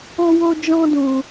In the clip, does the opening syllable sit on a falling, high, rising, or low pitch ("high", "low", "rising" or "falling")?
high